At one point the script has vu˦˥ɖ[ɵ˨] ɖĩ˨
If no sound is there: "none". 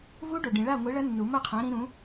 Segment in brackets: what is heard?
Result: o˨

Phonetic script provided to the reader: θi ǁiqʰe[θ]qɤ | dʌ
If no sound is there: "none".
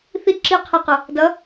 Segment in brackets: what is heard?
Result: none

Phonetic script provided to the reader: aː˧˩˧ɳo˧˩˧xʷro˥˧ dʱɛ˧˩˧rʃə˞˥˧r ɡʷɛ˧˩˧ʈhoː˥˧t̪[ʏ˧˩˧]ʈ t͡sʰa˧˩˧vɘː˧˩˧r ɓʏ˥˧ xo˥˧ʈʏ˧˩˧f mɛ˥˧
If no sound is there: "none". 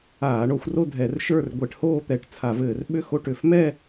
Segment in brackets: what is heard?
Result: ɛ˧˩˧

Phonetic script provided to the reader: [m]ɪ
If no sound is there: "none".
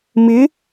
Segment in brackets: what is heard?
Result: m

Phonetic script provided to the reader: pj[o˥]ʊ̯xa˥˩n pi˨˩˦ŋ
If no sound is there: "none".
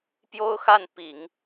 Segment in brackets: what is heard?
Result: o˥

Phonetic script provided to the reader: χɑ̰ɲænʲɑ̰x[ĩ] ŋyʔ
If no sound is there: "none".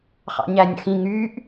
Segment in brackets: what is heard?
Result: ĩ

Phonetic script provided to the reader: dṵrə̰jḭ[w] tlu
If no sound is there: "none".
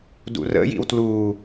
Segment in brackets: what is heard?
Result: w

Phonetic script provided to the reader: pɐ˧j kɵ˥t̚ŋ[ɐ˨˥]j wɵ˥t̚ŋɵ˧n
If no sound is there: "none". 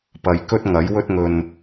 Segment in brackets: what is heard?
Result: ɐ˨˥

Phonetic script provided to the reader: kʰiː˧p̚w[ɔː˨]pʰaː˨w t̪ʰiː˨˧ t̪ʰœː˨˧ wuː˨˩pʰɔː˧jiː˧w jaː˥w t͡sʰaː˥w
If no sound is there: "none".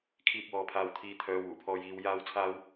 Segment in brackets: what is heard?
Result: ɔː˨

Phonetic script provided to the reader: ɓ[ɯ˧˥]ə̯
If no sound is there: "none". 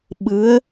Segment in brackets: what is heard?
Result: ɯ˧˥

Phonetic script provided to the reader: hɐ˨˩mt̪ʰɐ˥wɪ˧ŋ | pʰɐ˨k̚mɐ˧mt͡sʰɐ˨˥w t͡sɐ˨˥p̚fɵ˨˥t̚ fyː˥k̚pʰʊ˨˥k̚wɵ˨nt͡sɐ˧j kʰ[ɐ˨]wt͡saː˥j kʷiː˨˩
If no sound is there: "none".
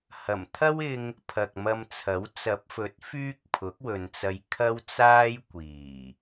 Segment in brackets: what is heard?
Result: ɐ˥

